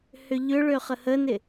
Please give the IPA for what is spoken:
hʏʎʏɭø χəhənɪ

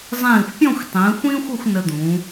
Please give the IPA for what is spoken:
zˤĩː˧˩xʷpʲɔ̃˥˧xʷ tˤĩː˩˧xʷĩː˥xʷə˥˧xʷ nə˧d̪ũː˩˧

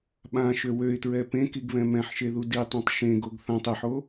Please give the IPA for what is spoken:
ɓãʃø wøɪ̯tɹɛ pẽkiɡβɛ̃ mɛ̃ħʃeðu ditˤõtˤ ʃẽɡoɡ θãtˤ eħo

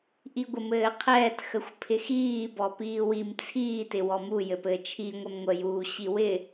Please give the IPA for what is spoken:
ʔiɡʷəmɘːqʰɛːt xəxʷpʰɪxiː bɔpiːwim t͡sʰiː tɪwɔmu jɘpɘːt͡ʃʰi ŋʷɛmŋʷə juːɕiwɪ

